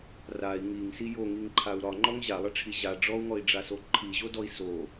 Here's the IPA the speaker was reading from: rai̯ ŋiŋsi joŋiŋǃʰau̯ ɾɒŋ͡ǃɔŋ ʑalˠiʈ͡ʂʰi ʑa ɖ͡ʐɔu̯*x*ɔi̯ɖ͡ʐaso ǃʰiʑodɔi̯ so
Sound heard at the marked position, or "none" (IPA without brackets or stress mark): ŋ